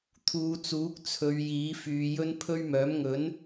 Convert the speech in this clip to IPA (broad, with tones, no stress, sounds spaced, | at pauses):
t̪ʰ uː˨˧ t͡s uː˨˥ k̚ t͡sʰ ɵ˨˧ ɥ j iː˨˥ f yː˨˧ j ɵ˥ n pʰ ɵ˥ ɥ m œː˨˥ m ŋ ɵ˨˥ n